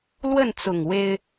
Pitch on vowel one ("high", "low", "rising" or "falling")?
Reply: falling